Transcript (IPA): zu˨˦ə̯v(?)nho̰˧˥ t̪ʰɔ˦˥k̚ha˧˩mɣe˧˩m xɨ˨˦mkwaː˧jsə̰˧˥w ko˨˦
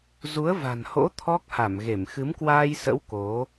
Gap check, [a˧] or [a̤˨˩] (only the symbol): a̤˨˩